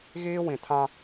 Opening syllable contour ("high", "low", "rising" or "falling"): high